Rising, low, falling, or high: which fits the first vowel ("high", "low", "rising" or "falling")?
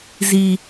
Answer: low